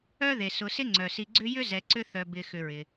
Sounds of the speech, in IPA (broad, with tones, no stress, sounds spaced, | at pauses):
œ˥ ð e˩ s ʊ˨ s ɪ˥ ŋ͡ǀ œ˩ s i˨ ɡ͡ǀ ʏ˦ j ʏ˥ z ɛ˨ ǀ ʏ˦ θ œ˨ b ɪ˨ x ʏ˨ ɹ ɪ˩